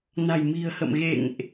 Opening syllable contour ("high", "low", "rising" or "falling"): low